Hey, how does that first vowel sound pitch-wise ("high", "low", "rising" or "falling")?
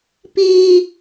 high